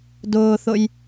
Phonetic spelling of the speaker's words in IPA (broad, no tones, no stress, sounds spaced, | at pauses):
d ʊː θ ʊ j